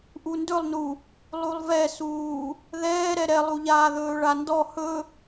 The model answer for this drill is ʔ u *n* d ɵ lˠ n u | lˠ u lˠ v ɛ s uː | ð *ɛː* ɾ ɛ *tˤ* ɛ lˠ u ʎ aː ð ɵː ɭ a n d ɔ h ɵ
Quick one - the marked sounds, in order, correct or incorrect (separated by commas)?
correct, correct, incorrect